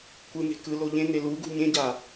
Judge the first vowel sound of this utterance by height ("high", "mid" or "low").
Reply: high